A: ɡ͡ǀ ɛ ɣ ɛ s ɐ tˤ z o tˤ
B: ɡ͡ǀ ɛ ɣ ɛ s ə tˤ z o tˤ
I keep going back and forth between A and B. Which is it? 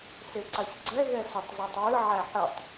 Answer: B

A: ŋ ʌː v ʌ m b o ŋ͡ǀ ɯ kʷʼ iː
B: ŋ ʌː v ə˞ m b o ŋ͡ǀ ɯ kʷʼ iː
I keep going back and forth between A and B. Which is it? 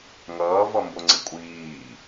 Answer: A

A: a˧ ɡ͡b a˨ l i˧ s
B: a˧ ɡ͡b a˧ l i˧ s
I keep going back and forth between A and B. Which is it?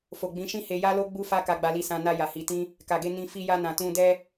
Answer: B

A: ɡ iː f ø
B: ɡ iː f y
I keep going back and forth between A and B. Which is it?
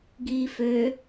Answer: A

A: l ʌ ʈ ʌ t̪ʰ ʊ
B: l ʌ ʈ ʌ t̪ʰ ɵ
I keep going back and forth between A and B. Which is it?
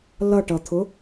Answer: A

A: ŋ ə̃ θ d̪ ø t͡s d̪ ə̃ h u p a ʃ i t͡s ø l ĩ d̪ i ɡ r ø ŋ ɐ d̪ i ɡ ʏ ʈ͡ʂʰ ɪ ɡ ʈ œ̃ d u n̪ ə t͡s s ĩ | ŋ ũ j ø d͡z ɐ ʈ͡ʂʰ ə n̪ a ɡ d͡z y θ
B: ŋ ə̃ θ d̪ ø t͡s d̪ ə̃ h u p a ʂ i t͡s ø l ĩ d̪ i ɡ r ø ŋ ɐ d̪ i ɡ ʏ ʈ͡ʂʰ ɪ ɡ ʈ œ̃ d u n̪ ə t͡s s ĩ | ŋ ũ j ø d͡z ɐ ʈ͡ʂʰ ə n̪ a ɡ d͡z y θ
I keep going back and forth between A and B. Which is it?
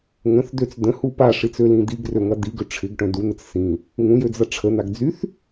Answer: B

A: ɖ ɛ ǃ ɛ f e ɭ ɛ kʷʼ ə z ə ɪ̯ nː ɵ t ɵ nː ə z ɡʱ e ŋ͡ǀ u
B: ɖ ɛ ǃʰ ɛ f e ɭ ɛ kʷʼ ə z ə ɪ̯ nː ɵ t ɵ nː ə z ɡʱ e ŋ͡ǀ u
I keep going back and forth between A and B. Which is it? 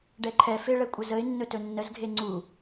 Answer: B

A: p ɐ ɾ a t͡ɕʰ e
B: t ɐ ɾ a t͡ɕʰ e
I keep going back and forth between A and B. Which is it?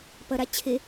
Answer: A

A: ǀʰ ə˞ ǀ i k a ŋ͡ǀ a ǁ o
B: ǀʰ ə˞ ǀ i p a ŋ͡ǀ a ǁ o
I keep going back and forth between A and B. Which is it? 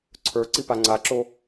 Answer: B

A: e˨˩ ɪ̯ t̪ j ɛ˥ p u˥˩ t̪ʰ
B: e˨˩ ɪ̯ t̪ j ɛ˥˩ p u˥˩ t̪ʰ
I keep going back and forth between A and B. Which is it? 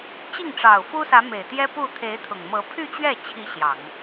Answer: A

